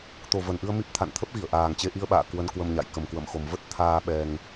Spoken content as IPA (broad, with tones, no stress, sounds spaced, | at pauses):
t̪ o˨˩ v ə˨˩ n ʔ ɨ˧ ə̯ m i˦˥ p̚ t̪ʰ a̰˧˨ n t̪ʰ ə˦˥ p̚ ɣ i˧˩ ə̯ ʔ aː˨˩ ŋ t͡ɕ e˧ ʔ i˧ ə̯ ɓ a̰ː˧˨ k w ə˧ n k w ə˧ m ɲ a̰˧˨ j k ə˨˩ m k w ə̰˧˨ m x o˨˩ m v ə˦˥ t̚ t̪ʰ aː˧ ɓ ɛ˧ ŋ